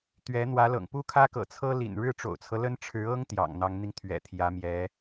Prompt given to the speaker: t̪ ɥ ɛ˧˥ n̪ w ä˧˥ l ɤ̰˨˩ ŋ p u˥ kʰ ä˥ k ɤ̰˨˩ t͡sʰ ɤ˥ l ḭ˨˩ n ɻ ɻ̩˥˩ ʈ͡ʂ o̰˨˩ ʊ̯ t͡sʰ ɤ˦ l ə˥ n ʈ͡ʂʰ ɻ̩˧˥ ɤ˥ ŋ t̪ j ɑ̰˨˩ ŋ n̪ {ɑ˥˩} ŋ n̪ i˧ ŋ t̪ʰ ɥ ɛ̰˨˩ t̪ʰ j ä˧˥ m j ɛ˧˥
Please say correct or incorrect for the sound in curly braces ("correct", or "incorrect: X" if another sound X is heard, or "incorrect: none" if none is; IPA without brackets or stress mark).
incorrect: ɑ˧˥